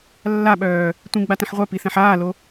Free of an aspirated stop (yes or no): yes